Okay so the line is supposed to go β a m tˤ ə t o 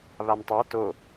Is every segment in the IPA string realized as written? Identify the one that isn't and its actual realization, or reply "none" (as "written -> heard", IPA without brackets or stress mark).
ə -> a